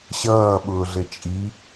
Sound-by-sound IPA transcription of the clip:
ɕ ʌː ɓ ʊː ɮ ɘ t͡ʃʼ i

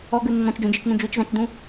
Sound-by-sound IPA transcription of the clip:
ɔ ɡ ɯ nː ɔ̃ t͡ʃ d͡ʒ ũ d͡ʒ ɯ t͡ʃ n ũ d͡ʒ u t͡ʃ z ã t͡ʃ d ũ

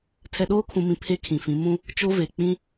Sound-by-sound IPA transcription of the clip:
tʰ ɛ˨ ɗ oː˦ kʰ ũ˨ m ĩ˨ pʰ e˦ kʰ ĩ˨ f ĩ˨˦ m ũ˦ | t͡ʃ o˦ v e˨ k͡p ĩ˦

